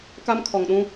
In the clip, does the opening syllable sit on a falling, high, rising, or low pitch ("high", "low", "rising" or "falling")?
high